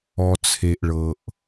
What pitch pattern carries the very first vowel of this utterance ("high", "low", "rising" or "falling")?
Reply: low